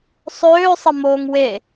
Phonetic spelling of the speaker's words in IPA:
sˤøːsˤəmoːŋ we

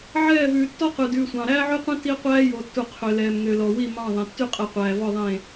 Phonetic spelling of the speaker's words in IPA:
ʕɛː˦˨vʉː˨ tːɔ˦qʉ˨ dʉː˨sʷɑ̃˨ɾæː˦ ʕy˦qʷĩ˦ ti˦qʷæː˦ jo˨tːu˨ qʰø˨ lɛː˨mŋø˨lɔ˨ wi˦˨ mɑ̃˦˨ðˤẽ˨ tːy˦qʼɛ˨qʷæː˨ vɔ˦˨ðˤẽ˦˨

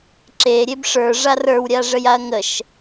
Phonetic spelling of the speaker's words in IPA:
ǁeɾʲeb ʂə˞ʐa rə˞wɾʲaʐəjaɐ̯ ŋəʃ

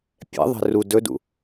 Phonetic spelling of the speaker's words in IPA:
pʲɛ̰ðˤɛ̤ ru dɵdṵ

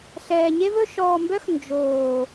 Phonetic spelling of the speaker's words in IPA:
ɬɛː˨ɲe˦vɵ˦ ʃɔː˨mbœ˦x nd͡ʒoː˨

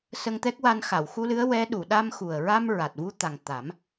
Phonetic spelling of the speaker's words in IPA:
sə˧ŋt̪ɛ˦˥k̚wa˧n xa˨˩˨wxu˧lɨ˧˥ə̯ wɛ˧˥ɗu˨˩˨ ɗa˧mxu˨˩ə̯ɹa˧m ɹa˨˩t̚vu˧t̪a˨˩ŋt̪a˨˩˦m

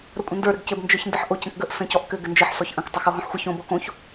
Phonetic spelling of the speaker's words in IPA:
ɾəkʷʼə̃ndə˞ ɾɘɡcɘb nd͡ʒə˞çndɘħʔoc ə̃kɡəʔ sə̃cɔʔkɘ ɡɘnd͡ʒɘħ sɔçʔə̃k tˤɘxoɦɔ̃ħxʷə çõ bɔkõç

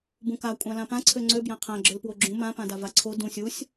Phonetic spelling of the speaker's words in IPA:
bũka kʷʼãlãpã ǀʰøŋ͡ǀø bjãqʰã ɡ͡ǁølpwoɡ͡ǁũ mã pãdavaǀʰo dũsʲ usʲ

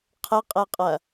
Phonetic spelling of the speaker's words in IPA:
qʰəqʼɛqʼɐ

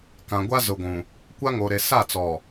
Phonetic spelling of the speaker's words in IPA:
kã˨ɡʷa˦zʊ˨ɡʷũ˨ | kʷa˦ŋo˨ɾe˨ sa˦˨t͡sɔ˨

